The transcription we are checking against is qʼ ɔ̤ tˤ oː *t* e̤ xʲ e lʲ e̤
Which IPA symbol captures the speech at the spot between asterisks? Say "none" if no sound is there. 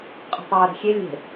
ɾ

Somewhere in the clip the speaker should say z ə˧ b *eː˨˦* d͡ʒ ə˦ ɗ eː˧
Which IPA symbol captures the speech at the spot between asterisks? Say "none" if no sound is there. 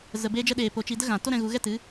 eː˦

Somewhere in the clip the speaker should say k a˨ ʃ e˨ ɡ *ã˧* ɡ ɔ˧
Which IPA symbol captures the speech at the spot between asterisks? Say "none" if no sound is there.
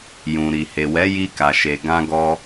ã˧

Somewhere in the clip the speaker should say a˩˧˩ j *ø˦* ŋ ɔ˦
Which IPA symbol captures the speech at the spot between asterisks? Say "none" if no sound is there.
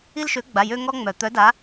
ø˦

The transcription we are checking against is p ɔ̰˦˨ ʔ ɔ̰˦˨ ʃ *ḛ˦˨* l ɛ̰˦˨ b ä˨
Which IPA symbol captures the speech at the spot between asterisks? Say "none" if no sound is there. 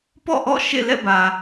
ḛ˦˨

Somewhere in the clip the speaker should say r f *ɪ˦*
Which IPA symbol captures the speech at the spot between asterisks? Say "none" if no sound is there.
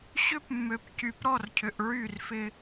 ɪ˦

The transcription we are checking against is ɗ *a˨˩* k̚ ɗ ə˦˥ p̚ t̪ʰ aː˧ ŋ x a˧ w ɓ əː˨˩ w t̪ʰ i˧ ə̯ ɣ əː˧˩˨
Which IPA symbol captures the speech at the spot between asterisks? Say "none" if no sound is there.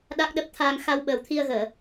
a˦˥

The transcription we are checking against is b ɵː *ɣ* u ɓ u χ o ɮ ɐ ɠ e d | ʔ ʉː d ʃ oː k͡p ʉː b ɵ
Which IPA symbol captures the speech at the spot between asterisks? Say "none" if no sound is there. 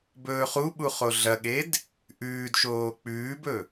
χ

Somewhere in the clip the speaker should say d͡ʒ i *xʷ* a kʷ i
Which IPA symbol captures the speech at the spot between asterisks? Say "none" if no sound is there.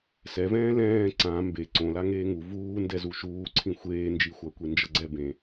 xʷ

